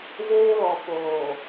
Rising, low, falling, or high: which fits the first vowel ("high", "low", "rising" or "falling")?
high